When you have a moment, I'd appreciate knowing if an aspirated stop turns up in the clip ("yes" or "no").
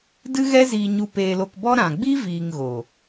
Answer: no